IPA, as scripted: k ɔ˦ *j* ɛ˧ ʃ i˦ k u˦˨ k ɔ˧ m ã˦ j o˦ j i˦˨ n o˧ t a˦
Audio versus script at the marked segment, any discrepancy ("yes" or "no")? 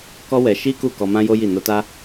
yes